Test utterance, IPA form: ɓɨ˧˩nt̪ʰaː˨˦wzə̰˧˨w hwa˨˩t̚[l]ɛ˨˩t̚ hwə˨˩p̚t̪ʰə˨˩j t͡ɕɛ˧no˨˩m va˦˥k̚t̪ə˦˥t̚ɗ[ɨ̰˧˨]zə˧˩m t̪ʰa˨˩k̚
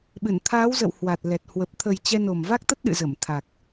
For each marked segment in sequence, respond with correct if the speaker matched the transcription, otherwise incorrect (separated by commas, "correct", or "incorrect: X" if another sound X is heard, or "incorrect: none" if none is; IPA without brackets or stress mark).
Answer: correct, correct